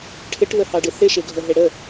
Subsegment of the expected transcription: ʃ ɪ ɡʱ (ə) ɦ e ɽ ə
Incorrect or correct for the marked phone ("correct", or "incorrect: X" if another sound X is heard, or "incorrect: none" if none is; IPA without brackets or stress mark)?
correct